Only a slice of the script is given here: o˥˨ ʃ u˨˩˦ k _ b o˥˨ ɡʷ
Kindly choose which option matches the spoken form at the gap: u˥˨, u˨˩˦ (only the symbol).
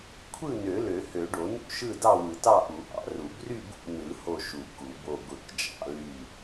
u˨˩˦